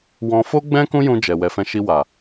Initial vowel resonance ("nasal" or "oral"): nasal